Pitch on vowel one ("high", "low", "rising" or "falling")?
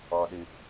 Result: low